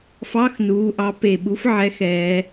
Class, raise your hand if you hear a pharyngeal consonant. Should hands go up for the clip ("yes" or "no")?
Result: yes